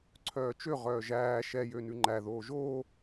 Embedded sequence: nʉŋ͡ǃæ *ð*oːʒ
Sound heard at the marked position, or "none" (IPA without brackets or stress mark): ð